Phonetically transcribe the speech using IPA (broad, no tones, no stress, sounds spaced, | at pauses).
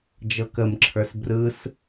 d͡ʒ ɤ k ə m ǁʰ ə˞ s b r ɯ s